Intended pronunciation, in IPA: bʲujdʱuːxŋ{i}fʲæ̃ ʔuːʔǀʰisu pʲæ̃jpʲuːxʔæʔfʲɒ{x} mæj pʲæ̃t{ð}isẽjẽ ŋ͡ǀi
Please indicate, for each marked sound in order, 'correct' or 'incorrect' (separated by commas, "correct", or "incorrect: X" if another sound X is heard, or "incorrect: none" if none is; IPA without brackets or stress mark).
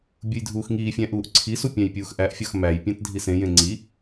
incorrect: iː, correct, incorrect: dʱ